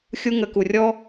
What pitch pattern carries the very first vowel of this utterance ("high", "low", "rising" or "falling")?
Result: high